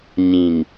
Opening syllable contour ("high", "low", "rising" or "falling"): low